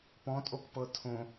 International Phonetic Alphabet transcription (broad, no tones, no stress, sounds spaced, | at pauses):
p ɔ̃ tʼ o k p ɤ tʰ õ